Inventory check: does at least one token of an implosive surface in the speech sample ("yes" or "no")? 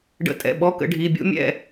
yes